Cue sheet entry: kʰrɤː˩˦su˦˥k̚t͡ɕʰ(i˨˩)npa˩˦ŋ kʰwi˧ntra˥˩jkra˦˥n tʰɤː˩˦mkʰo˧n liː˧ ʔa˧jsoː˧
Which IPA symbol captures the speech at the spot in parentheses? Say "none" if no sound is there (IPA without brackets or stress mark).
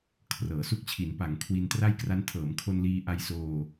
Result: i˩˦